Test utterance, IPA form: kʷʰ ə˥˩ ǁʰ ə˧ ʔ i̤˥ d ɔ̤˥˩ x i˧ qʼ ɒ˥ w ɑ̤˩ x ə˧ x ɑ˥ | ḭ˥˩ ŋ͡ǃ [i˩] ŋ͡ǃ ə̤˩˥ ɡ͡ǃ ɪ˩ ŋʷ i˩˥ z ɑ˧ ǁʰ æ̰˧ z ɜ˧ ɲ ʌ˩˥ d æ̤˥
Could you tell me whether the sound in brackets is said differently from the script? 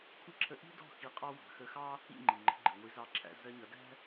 no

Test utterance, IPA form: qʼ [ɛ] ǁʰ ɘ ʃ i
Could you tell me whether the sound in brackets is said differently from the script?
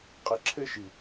no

